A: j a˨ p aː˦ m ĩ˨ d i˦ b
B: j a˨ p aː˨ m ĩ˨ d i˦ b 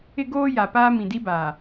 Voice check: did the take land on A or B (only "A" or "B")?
A